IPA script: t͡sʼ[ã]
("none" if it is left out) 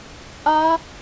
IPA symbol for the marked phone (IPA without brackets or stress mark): a